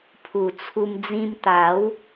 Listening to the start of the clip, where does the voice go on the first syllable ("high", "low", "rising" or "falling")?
low